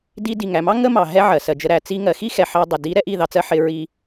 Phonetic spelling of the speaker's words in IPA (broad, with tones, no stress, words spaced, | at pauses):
di˦ di˨ŋæ˨mɑ˦ ŋə˦mɑ˨ ɦɛ˦ʕɜ˨ sɜ˨d͡ʒə˧ ɾæ˨t͡si˧ ŋɜ˨xi˦xɛ˨ ħɑ˧dˤɪ˨ di˨˦ɾɛ˧ ʔi˦˨ðɑ˧t͡sɜ˧ ħɪ˧ɹi˧